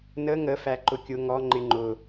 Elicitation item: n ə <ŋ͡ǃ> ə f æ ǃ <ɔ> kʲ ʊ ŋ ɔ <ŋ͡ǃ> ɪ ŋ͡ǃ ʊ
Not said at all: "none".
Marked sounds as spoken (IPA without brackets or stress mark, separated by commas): ŋ, ʊ, ŋ͡ǃ